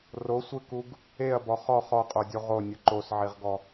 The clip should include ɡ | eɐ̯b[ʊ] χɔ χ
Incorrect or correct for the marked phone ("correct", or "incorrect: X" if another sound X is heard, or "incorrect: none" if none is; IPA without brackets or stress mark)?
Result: incorrect: ɔ